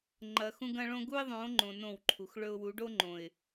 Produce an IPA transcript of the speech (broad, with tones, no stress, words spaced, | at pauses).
ŋ͡ǃɐ˨ xũ˦ɡɐ̃˦ɭõ˦ ɡu˦ɪ̯ðˤõ˨˦ŋ͡ǃõ˨ nõ˦˨wǃʰu˨xɭɵ˦ʊ̯ wu˨˦ɖo˦ŋ͡ǃõ˨ɪ̯